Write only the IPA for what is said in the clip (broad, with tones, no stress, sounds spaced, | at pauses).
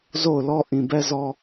z o˦˨ ʊ̯ l ɔ˦ ʔ ĩ˨ b ɛ˦ z ɔ˦